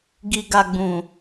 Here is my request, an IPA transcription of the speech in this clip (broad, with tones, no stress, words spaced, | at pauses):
ɡi˨ ɡa˨ɡ͡bũ˨